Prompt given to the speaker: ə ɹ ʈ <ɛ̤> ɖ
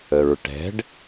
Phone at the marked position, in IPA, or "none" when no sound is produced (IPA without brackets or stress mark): ɛ̤